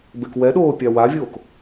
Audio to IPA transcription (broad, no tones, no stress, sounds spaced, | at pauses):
b e k w ɛ ɗ oː pʲ a w a vʲ oː k